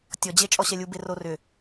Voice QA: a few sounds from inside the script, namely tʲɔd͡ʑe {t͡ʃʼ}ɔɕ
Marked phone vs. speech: correct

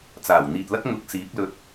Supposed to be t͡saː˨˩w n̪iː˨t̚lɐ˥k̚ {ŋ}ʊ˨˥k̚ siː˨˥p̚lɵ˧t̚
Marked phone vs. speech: correct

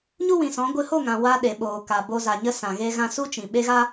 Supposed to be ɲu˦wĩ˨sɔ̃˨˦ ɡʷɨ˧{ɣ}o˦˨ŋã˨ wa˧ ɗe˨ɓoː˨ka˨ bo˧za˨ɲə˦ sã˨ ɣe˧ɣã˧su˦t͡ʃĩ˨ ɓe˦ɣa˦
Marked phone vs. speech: incorrect: h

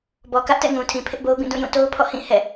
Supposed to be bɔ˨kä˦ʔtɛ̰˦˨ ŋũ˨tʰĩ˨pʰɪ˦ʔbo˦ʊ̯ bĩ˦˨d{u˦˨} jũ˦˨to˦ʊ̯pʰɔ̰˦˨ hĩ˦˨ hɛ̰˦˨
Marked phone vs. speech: incorrect: ũ˦˨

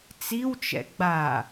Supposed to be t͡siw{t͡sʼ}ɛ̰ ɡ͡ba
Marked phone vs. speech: incorrect: t͡ʃ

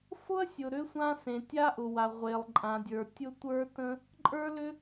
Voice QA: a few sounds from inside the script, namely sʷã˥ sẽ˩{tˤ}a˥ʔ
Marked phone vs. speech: incorrect: tʲ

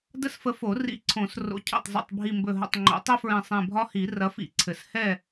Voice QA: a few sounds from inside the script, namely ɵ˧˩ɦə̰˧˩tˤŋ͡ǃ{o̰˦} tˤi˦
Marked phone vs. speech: incorrect: o̰˨˩˦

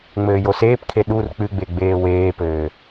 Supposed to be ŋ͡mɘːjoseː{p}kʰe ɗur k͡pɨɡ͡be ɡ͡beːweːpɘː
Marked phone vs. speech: correct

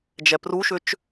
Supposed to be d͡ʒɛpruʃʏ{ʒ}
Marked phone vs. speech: incorrect: t͡ʃ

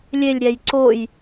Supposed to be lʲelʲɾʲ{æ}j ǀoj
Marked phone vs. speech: correct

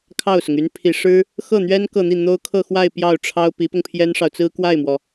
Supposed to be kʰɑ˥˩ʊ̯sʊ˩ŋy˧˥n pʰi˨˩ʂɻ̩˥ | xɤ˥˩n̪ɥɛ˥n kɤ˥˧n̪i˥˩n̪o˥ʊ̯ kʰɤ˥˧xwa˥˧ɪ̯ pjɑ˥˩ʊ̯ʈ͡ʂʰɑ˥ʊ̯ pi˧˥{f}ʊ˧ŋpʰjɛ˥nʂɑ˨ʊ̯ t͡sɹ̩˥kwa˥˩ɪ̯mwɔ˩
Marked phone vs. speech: incorrect: p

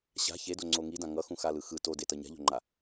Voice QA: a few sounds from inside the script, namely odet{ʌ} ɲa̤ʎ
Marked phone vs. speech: correct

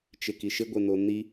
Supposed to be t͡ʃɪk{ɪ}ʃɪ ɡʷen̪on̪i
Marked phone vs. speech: incorrect: i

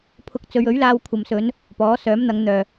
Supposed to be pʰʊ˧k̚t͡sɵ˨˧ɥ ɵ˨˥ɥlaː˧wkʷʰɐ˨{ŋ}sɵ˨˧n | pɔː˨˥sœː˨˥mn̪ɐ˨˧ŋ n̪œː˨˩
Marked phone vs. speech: incorrect: m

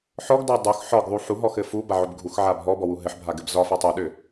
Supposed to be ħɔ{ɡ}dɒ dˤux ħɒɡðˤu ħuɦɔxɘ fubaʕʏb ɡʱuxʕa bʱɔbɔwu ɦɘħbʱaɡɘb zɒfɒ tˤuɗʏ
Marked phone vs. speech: correct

